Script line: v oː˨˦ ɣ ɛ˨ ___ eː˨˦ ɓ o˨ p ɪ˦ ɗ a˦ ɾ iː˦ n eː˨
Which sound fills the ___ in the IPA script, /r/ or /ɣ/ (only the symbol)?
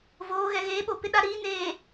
ɣ